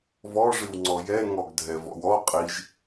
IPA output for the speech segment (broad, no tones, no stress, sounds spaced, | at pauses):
v ɔ ʐ ɨ w ŋ͡ǀ ɔ j ɛ ŋ ɔ ɡ dʱ ɛ v ɔ̰ w ɔ qʼ i ʒ